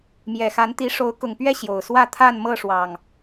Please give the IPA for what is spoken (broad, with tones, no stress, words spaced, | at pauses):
mjɛ˨˩xa˨˦nt̪i˨˦ ʂo˨˦ʊ̯kʊ˨˩ŋpɥɛ˥˨ ɕjo˨˩ʊ̯ swä˥˨t̪ʰa˥˨n mɤ˥˨ʂwɑ˨˩ŋ